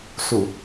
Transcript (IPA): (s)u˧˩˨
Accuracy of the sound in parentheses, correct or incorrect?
correct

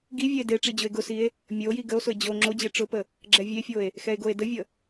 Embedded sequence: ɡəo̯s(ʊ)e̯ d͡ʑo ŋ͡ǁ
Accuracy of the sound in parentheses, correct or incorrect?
correct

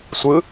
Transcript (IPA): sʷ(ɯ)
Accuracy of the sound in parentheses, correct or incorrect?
correct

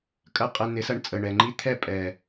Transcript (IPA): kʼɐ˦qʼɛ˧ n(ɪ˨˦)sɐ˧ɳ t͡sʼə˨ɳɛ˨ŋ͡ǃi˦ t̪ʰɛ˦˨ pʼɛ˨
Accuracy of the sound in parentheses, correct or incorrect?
correct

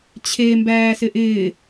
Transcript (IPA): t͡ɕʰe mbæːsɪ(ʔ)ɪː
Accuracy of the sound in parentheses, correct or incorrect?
correct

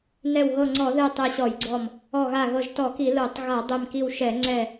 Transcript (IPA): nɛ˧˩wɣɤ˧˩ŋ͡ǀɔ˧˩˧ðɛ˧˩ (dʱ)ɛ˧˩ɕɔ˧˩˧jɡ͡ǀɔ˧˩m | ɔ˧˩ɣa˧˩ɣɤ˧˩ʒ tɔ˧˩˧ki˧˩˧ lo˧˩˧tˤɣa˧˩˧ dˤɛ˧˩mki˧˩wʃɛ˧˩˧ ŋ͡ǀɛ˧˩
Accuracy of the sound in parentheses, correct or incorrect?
incorrect: tˤ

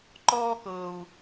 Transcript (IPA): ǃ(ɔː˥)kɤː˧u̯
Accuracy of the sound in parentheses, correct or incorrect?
correct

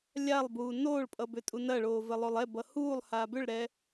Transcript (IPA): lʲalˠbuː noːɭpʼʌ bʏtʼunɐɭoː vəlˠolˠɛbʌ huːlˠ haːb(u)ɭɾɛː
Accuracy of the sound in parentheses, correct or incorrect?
incorrect: ʏ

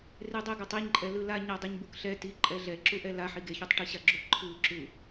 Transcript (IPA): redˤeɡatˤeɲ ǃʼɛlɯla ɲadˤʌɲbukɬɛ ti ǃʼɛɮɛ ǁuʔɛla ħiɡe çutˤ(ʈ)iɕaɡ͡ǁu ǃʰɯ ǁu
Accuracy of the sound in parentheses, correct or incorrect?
correct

